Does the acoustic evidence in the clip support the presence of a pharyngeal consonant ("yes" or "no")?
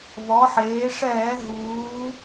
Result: yes